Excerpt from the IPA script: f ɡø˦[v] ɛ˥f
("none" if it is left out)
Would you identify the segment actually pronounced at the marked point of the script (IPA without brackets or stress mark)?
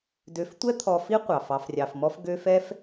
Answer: f